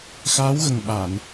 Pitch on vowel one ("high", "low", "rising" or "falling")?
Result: rising